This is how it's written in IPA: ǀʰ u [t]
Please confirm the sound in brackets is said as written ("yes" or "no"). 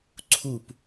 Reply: no